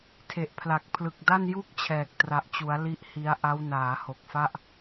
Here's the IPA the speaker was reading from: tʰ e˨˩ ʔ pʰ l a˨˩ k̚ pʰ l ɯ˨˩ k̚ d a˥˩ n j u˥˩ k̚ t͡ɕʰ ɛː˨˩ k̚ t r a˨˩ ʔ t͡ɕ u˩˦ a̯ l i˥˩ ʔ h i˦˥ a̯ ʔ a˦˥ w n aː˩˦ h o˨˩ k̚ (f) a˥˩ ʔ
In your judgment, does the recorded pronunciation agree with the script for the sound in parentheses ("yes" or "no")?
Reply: yes